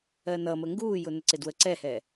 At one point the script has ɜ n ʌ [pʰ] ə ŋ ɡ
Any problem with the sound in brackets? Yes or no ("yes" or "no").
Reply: yes